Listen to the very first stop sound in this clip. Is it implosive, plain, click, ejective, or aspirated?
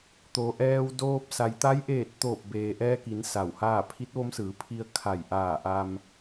plain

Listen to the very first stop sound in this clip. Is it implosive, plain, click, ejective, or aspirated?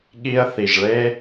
implosive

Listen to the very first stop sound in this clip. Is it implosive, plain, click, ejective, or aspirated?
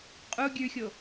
ejective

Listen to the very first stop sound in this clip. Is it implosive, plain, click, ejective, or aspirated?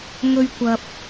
plain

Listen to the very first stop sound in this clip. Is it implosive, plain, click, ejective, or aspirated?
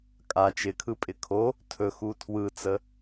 ejective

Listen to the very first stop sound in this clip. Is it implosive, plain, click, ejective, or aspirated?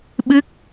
implosive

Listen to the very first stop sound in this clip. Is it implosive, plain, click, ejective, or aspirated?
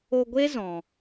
plain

